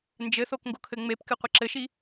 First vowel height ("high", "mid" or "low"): mid